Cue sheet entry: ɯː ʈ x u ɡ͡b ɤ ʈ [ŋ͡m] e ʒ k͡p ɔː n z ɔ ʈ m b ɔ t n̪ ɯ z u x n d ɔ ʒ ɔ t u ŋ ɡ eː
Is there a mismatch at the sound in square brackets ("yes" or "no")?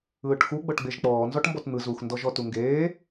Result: yes